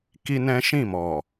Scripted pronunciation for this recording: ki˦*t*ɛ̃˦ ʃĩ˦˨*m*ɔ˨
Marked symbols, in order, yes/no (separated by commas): no, yes